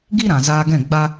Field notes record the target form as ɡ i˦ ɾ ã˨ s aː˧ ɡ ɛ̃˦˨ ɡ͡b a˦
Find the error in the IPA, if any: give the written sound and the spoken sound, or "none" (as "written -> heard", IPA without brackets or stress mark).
s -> z